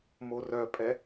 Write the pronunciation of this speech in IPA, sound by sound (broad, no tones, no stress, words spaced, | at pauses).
morœpʼɛ